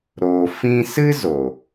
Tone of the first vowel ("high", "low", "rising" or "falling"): low